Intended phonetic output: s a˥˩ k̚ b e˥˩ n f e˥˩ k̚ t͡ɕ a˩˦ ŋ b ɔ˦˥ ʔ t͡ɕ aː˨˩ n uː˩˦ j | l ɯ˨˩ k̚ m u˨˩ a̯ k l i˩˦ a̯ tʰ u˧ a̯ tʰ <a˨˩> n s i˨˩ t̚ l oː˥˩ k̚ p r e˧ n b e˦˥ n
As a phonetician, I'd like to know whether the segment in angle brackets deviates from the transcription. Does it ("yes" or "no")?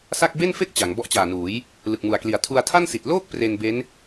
yes